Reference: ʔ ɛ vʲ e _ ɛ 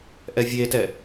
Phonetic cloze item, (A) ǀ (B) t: B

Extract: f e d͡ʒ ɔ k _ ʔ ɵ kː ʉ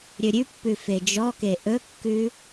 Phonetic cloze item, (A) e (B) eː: A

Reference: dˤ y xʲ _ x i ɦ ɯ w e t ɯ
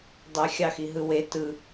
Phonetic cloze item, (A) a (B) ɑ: B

